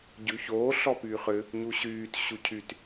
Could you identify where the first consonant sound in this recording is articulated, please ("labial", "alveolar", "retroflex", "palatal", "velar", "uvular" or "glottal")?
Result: palatal